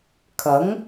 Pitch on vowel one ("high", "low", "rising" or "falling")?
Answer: rising